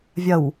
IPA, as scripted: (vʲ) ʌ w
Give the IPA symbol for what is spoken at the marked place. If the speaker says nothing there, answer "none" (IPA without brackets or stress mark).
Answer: vʲ